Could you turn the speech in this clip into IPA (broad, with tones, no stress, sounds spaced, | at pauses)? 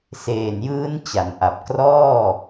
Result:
s eː˨˩ n j ɯː˦˥ n t͡ɕ a˩˦ n ʔ a˨˩ p̚ k r ɔː˥˩